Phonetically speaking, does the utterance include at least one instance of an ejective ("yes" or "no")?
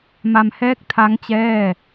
no